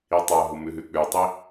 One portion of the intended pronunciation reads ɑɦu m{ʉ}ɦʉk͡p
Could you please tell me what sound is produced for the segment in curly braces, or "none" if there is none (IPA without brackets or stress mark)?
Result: ʉ